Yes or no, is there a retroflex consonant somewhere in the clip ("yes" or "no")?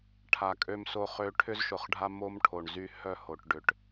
yes